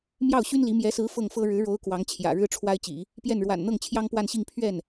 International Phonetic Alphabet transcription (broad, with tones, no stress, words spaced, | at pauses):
mjɑ˥˩ʊ̯ɕy˥nli˧˥ mjɛ˧˥sɹ̩˧˥ fɤ˥˩ŋfɤ˥ ɻɻ̩˧˥ɻo˧˥ʊ̯ kwɑ˧˥ŋt͡ɕʰjä̰˨˩ ɻɻ̩˥ʈ͡ʂʰwa˥ɪ̯t͡ɕḭ˨˩˦ | pjɛ˥˩n ɻwa̰˨˩nn̪ɤ˥˩ŋ t͡ɕʰjɑ˥ŋpwa˥˧nɕi˥˧ŋ pʰɥɛ˥˩n